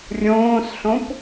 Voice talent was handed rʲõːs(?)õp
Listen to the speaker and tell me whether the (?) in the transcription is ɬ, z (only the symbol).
ɬ